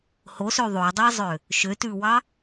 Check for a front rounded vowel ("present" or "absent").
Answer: present